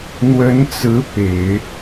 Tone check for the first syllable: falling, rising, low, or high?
rising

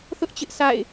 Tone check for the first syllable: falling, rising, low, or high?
high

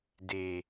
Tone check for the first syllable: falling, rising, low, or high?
low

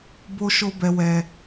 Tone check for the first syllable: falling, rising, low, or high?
high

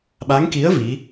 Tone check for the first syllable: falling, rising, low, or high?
rising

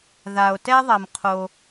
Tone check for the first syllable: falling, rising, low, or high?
low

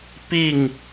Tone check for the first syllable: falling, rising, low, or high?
falling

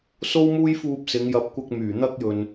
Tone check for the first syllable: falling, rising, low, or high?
high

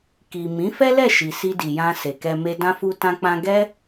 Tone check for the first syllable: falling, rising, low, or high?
low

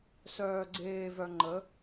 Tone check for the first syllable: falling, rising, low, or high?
low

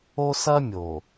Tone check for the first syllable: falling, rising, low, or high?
high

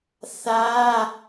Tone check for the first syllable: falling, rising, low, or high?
high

